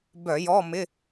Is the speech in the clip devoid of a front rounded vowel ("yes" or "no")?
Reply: no